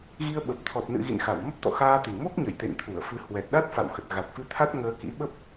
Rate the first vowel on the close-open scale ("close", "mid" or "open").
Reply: close